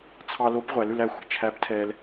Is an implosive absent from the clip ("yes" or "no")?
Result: yes